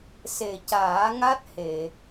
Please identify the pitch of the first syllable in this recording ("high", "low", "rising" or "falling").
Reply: low